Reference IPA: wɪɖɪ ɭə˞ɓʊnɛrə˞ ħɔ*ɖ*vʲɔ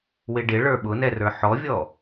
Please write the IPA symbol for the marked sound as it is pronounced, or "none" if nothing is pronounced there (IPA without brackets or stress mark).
none